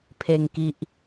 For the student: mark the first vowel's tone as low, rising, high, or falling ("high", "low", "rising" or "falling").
low